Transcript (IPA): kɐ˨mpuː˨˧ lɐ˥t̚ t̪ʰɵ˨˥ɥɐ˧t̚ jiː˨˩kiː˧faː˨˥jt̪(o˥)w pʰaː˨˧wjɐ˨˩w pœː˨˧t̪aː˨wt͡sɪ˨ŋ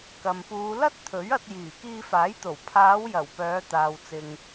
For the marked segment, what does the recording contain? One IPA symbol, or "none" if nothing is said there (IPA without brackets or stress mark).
o˨˩